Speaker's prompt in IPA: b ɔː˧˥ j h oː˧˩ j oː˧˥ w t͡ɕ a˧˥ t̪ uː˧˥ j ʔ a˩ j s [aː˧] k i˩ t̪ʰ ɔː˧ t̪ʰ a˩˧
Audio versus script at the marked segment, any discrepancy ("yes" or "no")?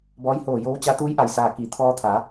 yes